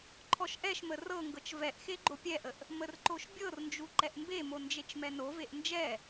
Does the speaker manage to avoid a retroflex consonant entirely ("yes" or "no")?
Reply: yes